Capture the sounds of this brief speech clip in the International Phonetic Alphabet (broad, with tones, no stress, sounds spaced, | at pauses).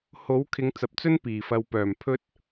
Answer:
h o˨˥ w kʰ ɪ˨˧ ŋ t͡s ɐ˨ p̚ t͡s ɵ˥ n p iː˨˩ f ɐ˨ w p œː˨˩ m pʰ ɵ˥ t̚